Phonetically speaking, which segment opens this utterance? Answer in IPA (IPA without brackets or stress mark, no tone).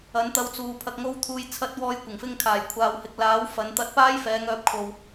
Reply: ɐ